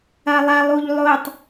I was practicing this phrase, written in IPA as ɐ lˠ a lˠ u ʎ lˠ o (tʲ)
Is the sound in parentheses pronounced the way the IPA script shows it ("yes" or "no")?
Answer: no